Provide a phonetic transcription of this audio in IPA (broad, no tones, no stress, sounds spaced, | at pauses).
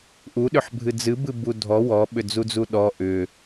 ʔ u ɗ ʏ ħ bʱ ɨ d͡z ɨ b ɨ b u dʱ ɔ w ɔ ɓ ʏ d͡z u d͡z u ɗ ɔ ʔ ʏ